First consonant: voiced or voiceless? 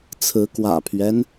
voiceless